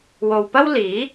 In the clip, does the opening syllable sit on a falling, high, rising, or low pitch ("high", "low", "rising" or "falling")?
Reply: low